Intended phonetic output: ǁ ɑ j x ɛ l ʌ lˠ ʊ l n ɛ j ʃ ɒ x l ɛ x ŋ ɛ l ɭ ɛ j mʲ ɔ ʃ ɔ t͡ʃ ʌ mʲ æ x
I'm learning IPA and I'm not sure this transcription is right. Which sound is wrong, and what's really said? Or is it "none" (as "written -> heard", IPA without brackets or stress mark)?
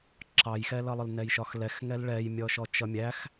none